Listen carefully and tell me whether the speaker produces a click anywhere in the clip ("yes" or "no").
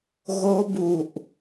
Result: no